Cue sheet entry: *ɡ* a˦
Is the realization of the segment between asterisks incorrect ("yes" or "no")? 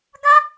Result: no